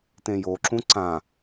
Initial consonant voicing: voiceless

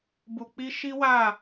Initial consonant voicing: voiced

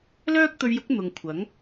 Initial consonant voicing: voiced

